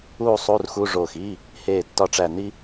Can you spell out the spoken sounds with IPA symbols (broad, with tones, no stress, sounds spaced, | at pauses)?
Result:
uː˥˧ sˤ u˧˥˧ r x u˧˥˧ ʐ oː˧˩ x i˧˥˧ | h eː˥˩ tː ɒ˥ ʈ͡ʂ æ˥˧ n i˥